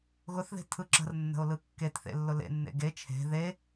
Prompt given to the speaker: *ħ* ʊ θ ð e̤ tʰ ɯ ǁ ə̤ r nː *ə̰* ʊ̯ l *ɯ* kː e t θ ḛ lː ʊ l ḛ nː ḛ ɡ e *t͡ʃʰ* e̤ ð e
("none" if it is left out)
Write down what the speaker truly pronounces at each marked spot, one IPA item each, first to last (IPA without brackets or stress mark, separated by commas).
ɣ, ə̤, ɯ, t͡ʃʰ